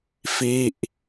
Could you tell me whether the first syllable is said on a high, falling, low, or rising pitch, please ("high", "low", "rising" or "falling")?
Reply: falling